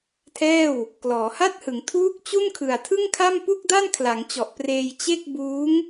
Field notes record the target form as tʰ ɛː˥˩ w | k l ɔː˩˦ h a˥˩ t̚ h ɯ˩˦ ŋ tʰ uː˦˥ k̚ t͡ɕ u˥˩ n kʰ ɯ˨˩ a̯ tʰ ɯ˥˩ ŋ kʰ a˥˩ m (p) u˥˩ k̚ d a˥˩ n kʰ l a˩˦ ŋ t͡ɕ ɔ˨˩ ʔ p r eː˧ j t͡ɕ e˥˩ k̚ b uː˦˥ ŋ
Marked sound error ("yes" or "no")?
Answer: no